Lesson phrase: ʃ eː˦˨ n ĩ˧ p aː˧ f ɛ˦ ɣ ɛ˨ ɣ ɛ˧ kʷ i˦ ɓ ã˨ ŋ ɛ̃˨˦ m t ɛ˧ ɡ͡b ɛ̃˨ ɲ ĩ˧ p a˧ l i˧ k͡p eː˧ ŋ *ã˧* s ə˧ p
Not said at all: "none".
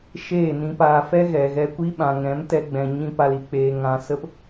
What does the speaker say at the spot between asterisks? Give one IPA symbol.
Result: ã˨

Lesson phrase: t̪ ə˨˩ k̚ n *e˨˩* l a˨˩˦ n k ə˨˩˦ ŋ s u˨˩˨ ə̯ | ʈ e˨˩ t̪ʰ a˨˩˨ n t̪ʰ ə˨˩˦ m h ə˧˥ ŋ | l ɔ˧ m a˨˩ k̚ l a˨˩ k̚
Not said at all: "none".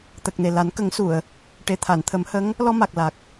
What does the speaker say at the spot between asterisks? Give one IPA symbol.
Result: e˨˩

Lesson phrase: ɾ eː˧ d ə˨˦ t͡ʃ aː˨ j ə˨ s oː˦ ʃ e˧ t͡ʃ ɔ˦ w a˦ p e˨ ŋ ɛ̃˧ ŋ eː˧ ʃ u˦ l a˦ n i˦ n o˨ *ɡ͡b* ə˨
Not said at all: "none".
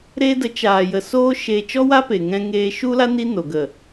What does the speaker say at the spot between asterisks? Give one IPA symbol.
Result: ɡ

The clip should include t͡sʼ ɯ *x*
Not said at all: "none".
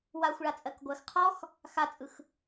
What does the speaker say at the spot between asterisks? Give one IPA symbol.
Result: x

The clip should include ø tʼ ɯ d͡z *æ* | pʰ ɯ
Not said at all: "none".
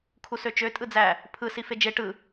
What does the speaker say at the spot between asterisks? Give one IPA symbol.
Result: æ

